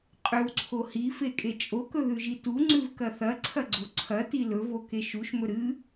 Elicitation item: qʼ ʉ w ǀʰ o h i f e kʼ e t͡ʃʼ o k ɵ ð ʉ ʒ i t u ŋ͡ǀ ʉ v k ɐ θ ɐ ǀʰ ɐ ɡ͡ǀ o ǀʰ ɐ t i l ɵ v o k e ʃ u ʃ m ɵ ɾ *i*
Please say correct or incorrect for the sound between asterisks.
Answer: incorrect